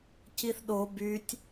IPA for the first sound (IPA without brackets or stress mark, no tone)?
c